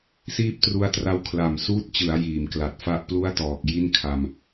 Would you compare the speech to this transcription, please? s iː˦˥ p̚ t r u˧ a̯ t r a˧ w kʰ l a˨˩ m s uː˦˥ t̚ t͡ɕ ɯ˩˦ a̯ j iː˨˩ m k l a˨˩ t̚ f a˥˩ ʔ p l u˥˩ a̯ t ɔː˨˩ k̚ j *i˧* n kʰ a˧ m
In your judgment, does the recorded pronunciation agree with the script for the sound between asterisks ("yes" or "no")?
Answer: no